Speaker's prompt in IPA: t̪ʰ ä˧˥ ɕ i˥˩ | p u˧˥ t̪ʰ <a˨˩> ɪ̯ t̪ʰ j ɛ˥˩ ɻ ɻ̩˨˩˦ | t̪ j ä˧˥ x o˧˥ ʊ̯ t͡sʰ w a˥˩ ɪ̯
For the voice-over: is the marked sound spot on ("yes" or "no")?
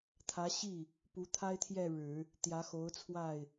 no